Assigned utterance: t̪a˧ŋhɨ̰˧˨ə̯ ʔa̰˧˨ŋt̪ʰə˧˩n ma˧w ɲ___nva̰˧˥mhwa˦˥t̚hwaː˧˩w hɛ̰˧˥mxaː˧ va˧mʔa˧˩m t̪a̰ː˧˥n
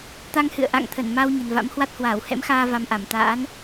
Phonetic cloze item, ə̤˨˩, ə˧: ə̤˨˩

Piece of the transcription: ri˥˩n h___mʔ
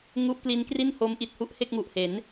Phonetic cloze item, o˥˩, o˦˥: o˦˥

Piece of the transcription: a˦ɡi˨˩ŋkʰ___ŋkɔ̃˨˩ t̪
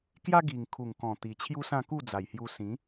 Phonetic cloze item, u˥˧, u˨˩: u˨˩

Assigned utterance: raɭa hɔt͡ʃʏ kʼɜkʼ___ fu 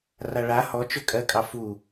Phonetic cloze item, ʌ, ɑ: ɑ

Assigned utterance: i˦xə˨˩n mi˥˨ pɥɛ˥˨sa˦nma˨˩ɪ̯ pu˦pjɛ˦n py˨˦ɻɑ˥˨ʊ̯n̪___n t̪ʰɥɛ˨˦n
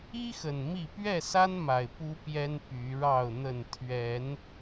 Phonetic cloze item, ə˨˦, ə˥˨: ə˥˨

